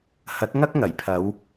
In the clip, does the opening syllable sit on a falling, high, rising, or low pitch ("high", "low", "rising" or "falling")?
rising